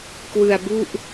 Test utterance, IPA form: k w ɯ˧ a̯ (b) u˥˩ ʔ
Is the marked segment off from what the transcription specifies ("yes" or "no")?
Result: no